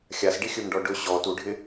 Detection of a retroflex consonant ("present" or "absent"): present